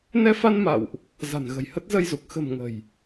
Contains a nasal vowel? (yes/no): no